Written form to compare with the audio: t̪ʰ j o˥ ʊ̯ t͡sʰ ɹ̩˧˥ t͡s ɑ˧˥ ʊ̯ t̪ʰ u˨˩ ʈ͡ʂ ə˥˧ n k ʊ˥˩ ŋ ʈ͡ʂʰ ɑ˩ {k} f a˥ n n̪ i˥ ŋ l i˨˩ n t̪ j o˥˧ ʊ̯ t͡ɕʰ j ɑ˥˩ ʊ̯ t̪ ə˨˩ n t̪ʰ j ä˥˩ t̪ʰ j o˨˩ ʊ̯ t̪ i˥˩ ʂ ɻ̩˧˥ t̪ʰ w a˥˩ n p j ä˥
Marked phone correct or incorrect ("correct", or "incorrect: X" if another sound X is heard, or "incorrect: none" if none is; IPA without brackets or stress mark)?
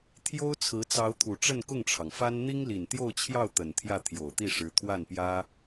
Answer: incorrect: ŋ